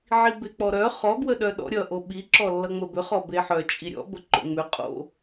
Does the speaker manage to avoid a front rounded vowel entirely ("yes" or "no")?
no